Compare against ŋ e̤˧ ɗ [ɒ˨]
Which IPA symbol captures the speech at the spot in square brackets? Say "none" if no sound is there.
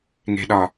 ɒ˨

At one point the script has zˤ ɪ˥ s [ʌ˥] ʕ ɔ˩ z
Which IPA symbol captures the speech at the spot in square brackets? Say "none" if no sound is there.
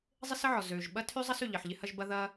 ə˥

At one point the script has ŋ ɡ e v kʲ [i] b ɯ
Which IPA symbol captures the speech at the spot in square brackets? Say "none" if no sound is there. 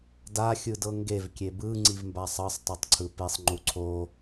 e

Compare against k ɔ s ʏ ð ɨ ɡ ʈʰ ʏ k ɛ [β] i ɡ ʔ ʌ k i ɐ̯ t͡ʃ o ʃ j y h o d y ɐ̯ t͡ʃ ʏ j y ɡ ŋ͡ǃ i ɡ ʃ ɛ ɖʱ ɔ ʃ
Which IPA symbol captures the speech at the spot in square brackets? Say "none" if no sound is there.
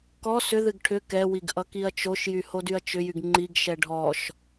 w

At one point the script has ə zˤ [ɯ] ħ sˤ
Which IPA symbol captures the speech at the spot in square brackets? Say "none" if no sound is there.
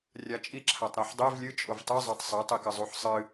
u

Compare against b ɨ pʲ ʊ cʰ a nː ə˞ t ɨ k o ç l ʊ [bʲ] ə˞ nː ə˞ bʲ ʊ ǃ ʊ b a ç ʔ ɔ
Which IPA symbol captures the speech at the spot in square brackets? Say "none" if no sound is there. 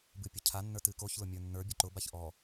mʲ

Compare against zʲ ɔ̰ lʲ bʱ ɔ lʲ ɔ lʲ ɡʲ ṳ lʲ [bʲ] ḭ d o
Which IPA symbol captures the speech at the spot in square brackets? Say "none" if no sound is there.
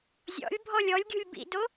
b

